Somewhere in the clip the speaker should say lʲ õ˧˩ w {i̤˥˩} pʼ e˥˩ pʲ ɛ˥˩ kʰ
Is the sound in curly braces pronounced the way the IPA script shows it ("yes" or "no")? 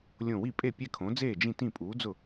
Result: no